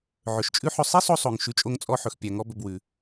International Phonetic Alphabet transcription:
ʕ ɵ˩ ʃ t͡ʃʼ ʉ˥ ħ ɵ˧ sˤ i˥ sˤ o˧ sˤ o˩ ŋ ʃ ʉ˧ t͡ʃʼ o˥ ŋ t͡sʼ ɔ˥ ħ ɵ˩ x pʲ æ˩ ŋ ɔ˥ b ɵ˧ b w ʉ˩

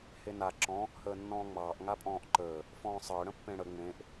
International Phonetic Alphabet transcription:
h e n a ǁ ɔ̃ | h əː nː ɔ̃ː ŋ͡m ɑː ʔ ŋ a pʼ ɔ̃ː ʔ ǃ əː | f ɔ̃ː sˤ əː ɽ ə̃ pː ẽ ɽ ə ŋ͡m ẽ ʔ

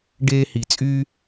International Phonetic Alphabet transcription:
ɖ eː˧ h i˨ t͡sʼ yː˦

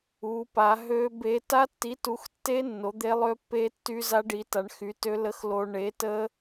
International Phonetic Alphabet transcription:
u˨˥ p a˨˥ ɦ ø˦˥ b e˦˥ t a˦˥ tː i˨˥ t u˨˥ x tː e˦˥ nː o˨˥ d̪ e˦˥ lˠ ø˦˥ pː e˦˥ tː y˦˥ z a˦˥ ɖ i˨˥ t a˨˥ ɳ x y˨˥ t ø˦˥ l ə˦˥ x l o˦˥ ɳ e˨˥ t ə˦˥

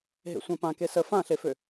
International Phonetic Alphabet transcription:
ɦ ḛ sʷ ã p ã k e s ə f ã ɬ e f ø

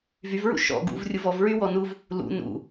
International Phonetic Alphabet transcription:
v y v ɹ ṵ ʃ ɔ̰ ɡ ṵ v rʲ u v ɔ v ɹ y w ɔ n u v | l ṵ n ṵ

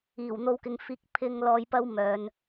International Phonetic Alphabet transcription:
iː˨˩ w n̪ o˧ w k ɪ˨ ŋ f iː˧ k̚ pʰ ɪ˧ ŋ l ɔː˧ j p ɐ˥ w m œː˨˧ n

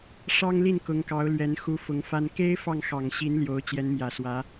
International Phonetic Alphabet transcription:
ʂ ɑ˥ ŋ l i˥˩ n k ʊ˧˥ ŋ k ɑ˧˥ ʊ̯ l ɥ ɛ˧˥ n x u˧˥ f ʊ˧˥ ŋ f a˥ n k e˥ ɪ̯ f ɑ˥˩ ŋ x ɑ˨˩ ŋ ɕ i˧˥ n l j o˧˥ ʊ̯ t͡ɕ j ɛ˧˥ n m j ä˨˩ s w ä˧˥

